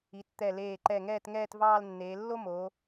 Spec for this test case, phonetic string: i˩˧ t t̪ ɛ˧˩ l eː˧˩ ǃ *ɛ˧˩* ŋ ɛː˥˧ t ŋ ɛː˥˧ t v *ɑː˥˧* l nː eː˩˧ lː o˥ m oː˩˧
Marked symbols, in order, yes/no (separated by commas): yes, yes